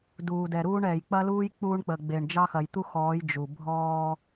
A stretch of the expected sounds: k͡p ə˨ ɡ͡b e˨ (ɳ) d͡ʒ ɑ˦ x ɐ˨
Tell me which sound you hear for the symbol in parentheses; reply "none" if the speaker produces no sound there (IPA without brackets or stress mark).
ɳ